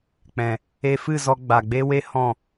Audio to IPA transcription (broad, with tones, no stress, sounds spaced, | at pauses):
k͡p ɛ̃˨ | e˧ f ɨ˦˨ z ɔ˧ ɡ͡b a˨ ɡ͡b e˦ w e˦ h ɔ̃˦˨